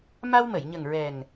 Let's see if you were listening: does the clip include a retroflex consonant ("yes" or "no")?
no